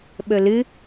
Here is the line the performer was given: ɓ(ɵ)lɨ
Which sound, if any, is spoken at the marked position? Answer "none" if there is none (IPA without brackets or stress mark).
ɵ